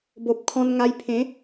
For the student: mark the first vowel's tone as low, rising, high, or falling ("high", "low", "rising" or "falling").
low